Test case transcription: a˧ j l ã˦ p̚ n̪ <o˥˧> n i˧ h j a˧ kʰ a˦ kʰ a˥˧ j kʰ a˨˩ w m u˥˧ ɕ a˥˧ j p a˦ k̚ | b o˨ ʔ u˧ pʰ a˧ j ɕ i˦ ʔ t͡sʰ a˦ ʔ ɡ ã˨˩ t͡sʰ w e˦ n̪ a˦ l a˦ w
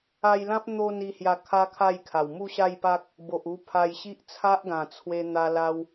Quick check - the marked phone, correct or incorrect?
correct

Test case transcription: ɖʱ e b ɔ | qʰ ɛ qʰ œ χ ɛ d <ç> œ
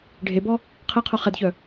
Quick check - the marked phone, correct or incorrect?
correct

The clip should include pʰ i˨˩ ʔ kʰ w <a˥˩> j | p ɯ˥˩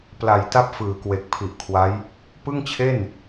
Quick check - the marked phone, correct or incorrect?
incorrect: a˦˥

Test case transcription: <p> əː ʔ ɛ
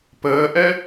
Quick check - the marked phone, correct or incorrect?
correct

